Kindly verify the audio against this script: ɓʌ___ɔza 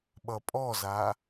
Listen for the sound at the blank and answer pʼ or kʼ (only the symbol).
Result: pʼ